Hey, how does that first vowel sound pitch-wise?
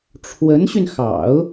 rising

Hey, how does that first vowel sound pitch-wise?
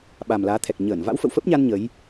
low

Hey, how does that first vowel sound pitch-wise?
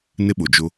high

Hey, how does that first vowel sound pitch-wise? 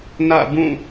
falling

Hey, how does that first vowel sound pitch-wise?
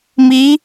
rising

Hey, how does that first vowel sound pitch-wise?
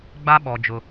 high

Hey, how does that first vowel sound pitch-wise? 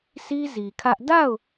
high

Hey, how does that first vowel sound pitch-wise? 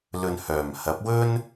low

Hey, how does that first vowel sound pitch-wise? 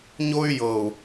high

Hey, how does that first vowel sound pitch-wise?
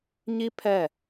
high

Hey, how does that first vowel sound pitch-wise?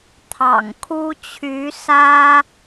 low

